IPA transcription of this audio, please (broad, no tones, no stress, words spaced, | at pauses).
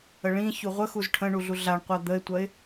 əɭĩçu ʁʷə xuzʈʰə̃ɳu ɮuɮaɳqʷa d̪əɪ̯tʷɐɪ̯